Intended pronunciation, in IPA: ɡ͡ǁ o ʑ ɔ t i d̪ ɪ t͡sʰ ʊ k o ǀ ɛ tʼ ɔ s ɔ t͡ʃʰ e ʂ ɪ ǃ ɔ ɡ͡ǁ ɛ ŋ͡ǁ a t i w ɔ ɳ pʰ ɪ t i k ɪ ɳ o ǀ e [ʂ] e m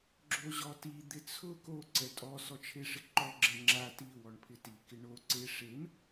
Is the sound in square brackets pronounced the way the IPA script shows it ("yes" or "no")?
yes